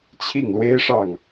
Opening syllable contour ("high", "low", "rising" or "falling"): falling